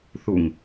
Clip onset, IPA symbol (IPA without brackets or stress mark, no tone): θ